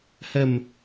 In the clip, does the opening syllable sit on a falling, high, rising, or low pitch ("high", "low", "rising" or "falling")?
low